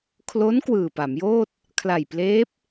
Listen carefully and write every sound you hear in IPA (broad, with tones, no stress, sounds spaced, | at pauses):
kʰ l o˦˥ n k w ɯː˨˩ p a˩˦ m j oː˥˩ t̚ | kʰ l a˨˩ j p l eː˦˥ p̚